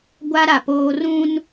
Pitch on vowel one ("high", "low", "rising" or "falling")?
high